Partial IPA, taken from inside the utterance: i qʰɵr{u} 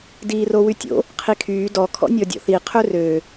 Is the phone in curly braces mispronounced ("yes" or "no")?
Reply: yes